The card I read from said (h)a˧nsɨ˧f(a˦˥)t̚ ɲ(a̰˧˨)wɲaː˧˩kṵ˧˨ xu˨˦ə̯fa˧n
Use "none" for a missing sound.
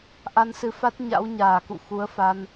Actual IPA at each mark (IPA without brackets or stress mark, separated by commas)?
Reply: ʔ, a˦˥, a̰˧˥